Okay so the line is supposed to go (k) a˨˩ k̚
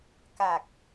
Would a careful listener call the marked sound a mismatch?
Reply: no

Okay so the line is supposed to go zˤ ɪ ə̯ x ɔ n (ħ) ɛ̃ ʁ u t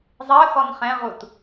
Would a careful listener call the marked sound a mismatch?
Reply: yes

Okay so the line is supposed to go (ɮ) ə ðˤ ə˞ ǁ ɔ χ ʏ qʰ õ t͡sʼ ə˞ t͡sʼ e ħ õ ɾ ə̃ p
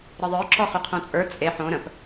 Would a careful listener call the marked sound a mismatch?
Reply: yes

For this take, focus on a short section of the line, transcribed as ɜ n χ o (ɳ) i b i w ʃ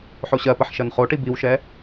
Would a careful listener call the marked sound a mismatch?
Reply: yes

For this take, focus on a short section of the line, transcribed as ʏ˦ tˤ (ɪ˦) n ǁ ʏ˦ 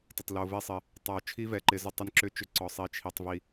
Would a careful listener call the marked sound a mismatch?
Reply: no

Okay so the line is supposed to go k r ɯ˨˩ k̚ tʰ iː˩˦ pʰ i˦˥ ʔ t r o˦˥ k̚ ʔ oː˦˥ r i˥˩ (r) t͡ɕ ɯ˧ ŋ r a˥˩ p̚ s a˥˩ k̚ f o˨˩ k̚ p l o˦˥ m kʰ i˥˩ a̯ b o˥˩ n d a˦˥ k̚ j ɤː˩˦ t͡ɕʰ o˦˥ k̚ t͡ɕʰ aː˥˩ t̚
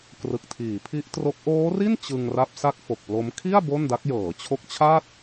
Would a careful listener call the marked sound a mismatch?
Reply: yes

